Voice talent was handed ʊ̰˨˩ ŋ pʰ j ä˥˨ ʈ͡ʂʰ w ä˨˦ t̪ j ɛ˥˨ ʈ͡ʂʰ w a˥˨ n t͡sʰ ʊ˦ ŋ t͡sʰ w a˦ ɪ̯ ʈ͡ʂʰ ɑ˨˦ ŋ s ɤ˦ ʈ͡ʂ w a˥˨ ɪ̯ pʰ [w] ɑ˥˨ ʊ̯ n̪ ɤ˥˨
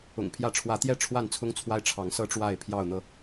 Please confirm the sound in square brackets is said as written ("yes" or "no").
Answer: no